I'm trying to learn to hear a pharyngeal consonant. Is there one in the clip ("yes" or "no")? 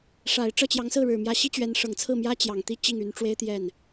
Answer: no